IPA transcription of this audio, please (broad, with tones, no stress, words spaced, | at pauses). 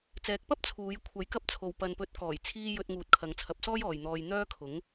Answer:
t͡sɛː˨˥k̚pɐ˥p̚ t͡sʰuː˨˧j kʷʰɐ˨˥jkɐ˧p̚t͡sʰo˨w pɐ˨npɵ˨˥t̚kɔː˨˩jt͡sʰiː˧ jɵ˧t̚ ŋuː˨t̚kʰɐ˨˧ŋt͡sʰɐ˨˥p̚sɔː˥j ɔː˨jn̪ɔː˧j n̪œː˥kʰʊ˨˥ŋ